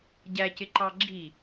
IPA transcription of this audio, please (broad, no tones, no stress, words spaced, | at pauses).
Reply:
ɟæcɪǃɑ ɡ͡ǁi